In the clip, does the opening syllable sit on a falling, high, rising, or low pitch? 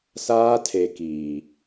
high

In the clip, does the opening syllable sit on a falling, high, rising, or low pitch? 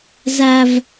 low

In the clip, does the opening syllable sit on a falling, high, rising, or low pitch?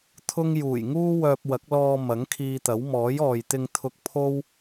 high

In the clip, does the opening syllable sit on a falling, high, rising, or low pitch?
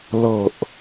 falling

